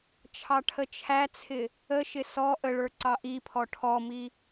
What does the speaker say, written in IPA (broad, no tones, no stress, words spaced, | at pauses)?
t͡ʃʰɑʈʰət͡ʃʰæt͡sʰɪ | əʃɪ sɔ ʔəɭə˞ ǀɑʔipʰɔ ʈʰɔmi